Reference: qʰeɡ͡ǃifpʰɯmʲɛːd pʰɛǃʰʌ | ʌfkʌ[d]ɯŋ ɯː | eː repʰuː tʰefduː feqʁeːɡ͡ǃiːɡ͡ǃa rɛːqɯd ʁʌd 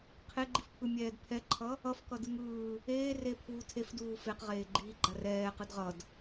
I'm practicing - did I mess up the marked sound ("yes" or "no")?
no